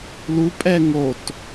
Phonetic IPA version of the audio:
l u pʼ ɛ ŋ o t

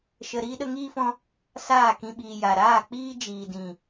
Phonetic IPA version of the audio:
ʃ ə˧ ɾ iː˦ ɗ ə˦ ŋ iː˦ f ɔ̃˦ | s aː˦˨ k ĩ˧ ɓ iː˨ j a˨ ɾ aː˦˨ k͡p iː˦ d͡ʒ iː˨ d ĩ˨

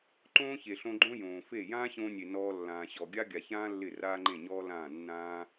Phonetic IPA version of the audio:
ǃ õː˦ ç e˨ ɬ õ˧ ɡ͡ǃ õ˦ j õː˨ f e˦˨ j ãː˦ ɕ õː˧ nʲ e˨ n ɔː˧ lː ãː˨ ɕ ɔ˨ ɡʲ a˦ ɡʲ a˨ ç ãː˦ lː ɪ˦˨ r aː˦ ŋ͡ǃ ẽ˦˨ ɲ ɔː˦ l ãː˦˨ nː ãː˧

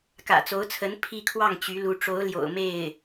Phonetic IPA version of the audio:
k ä̰˨˩ t͡s o˧˥ ʊ̯ t͡sʰ ə˧˥ n pʰ i˥˧ kʰ w ɑ˥˩ ŋ t͡ɕ y˧˥ l u˧˥ ʈ͡ʂ o˧˥ ʊ̯ l j o̰˨˩ ʊ̯ m e˥˩ ɪ̯

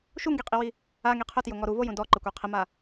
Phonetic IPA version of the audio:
ʃ u ŋ ɡ i qʼ i w i | a ŋ i qʰ ʊ t j ʊ ŋ ɔ ɾ u v o j ũ d ɔ ǃ ɪ kʷ e qʰ ɪ m a

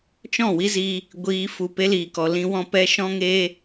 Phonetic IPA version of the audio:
t͡ʃ ɔ̃˦˨ w i˦ z i˧ | ɡʷ iː˧ f u˨ p e˦ l iː˨ k ɔ˨ l ĩ˧ w ɔ̃˧ p ɛ˧ ʃ ɔ̃˦ ŋ eː˦

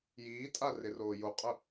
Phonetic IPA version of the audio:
j iː tʼ a r ɪ r oː j o qʼ ʊ

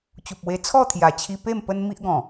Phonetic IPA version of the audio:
t͡ɕ u˨ p̚ w e˧ t͡sʰ ɔ˥˧ t̪ʰ j a˨˩ t͡ɕʰ i˧ p e˥˧ m p ə˦ n m i˦ ʔ ɡ ɔ̃˨˩

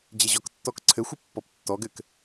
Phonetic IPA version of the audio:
d͡ʑ e ʑ ɔ k tː ɔ k ǀʰ ɘ xʷ ɘ pː ɔ p tː ɔ ɡ ɘ k

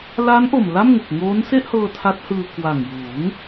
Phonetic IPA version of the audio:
l a˦˥ n ʔ o˨˩ m l a˥˩ m ŋ u˨˩ k̚ ŋ oː˦˥ n s e˥˩ ʔ h ɤː˧ tʰ a˦˥ t̚ h ɯː˧ k w a˨˩ ŋ j uː˩˦ ŋ

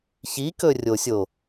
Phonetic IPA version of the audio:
ç i k ɵ rʲ o sʲ o

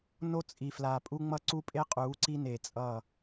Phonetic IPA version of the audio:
n o˦ t͡sʼ i˨ f l a˨ pʼ u˦ ŋ͡m ʌ˦ ǀ u˦ pʼ e˦ qʼ uː˨˦ ǀ i˦ n e˨ t͡sʼ ʌ˦˨

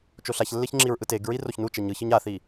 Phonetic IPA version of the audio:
t͡ʃ o ɬ a ç lː e ç ŋ͡ǁ i ɹ ʔ ɯ t e ɡ ɹ i r o ç n u t͡ʃ ɛ ɲ ɯ ç ɯ ɲ a θ i

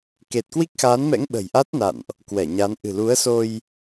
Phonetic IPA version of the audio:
k e˨˩ t̚ k w i˦˥ k̚ x aː˨˦ n m ɛ̰˧˥ ŋ ɓ ə̤˨˩ j ʔ a˦˥ t̚ n a̰˧˨ n ʔ | k w ɛ˧˩ ɲ a˨˦ n ʔ ɨ̤˨˩ l u˨˦ ə̯ s o˧ j

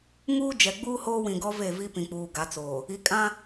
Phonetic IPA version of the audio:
ŋ uː˦ d͡ʒ ɛ˨ ɡ͡b uː˦ h oː˦ w ĩ˨ ɡ ɔ˦ v e˦˨ v i˦ p ĩ˨ k͡p uː˨ ɡ a˨˦ t͡s oː˨ | i˨ kʼ ã˦

